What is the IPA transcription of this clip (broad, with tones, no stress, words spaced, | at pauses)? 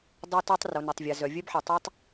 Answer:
dˤœ˦tɔ˦tˤ ro˨nʏ˨tˤvʲa˨zœ˨ vʲœ˦bħɛ˨ tˤi˨tˤ